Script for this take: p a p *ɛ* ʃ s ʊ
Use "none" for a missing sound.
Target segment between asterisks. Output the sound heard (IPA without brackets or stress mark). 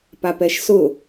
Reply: ɛ